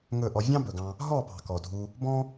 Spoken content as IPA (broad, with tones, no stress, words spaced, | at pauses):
ŋɵ˦˨ʔɔ˧ vʲɑ̃˦bɵ˨ɡɑ̃˧ | ɦɔ˦˨pɑ̤˨ kɔ˨dʱu˧ | bɔ̃˦